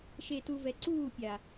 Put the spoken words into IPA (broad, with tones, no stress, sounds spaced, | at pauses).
ʃ e˨ t u˨ v ɛ˨ ǀ uː˦˨ pʲ a˨